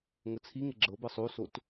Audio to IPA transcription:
ŋ ə t͡sʰ i ŋ ɪ ɡ͡ǁ ɤ b ɤ sˤ o s o t

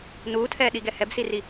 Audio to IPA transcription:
n uː tʰ ɛː ɗ i ɡ ɛ h ɛ b s i r i

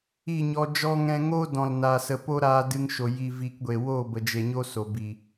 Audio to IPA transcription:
i˦˨ ɲ ɔ˧ d͡ʒ ɔ˧ ŋ ɛ̃˧ ŋ oː˦ d ɔ̃˨ l n aː˨ s ə˨ p o˦ ɾ aː˧ d ɨ˧ ŋ ʃ o˨ j i˧ v i˧ k ɡʷ e˨ w o˦˨ b ə˨ d͡ʒ e˨ ɲ o˦ s o˨ b i˨

